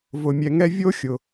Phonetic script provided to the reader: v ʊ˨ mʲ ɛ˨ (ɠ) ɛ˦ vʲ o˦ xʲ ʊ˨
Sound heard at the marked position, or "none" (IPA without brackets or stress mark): ŋ